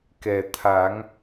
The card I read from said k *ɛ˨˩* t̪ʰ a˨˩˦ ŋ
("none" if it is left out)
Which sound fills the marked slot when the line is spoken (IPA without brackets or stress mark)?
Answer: ɛ˨˩